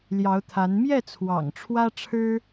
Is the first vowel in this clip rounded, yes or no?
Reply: no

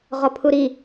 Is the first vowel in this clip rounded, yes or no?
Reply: yes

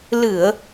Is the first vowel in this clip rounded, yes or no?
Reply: no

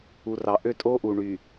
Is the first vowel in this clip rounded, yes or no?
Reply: yes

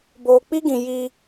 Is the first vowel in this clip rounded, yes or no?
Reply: yes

